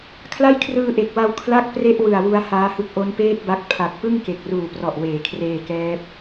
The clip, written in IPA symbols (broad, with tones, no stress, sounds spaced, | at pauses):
kʰ l a˥˩ j kʰ r ɯː˧ ʔ e˨˩ k̚ w a˧ w kʰ l a˥˩ k̚ p r e˥˩ ʔ w ɯ˨˩ a̯ w u˦˥ a̯ h aː˦˥ h ɯ˦˥ k̚ ʔ o˦˥ n p eː˥˩ t̚ b a˦˥ k̚ pʰ a˨˩ k̚ p ɯ˥˩ ŋ k e˨˩ k̚ r uː˨˩ p r ɔ˨˩ ʔ w eː˩˦ kʰ r eː˧ k ɛː˦˥ p̚